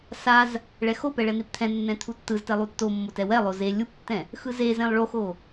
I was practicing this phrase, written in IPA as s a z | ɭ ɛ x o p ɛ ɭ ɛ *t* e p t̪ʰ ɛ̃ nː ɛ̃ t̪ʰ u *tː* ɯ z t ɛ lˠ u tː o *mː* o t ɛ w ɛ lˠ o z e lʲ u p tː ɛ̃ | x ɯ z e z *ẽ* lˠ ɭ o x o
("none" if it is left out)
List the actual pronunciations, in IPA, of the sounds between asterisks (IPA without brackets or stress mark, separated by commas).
n̪, tː, mː, ẽ